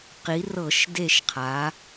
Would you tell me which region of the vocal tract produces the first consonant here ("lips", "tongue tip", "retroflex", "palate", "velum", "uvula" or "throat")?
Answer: uvula